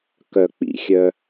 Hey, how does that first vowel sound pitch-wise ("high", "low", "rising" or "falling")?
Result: low